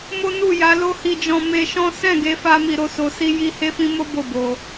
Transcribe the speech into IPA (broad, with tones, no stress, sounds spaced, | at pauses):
m o˦ n u˦˨ j a˨˦ l o˦ h i˧ d͡ʒ ɔ̃˧ m e˧ ʃ ɔ̃˦ s ɛ̃˦˨ ɡ e˨˦ f a˦ m i˧ ɾ o˦ s o˧ s i˦ j i˦ h e˦ f ĩ˦ m o˦ b o˦˨ b o˧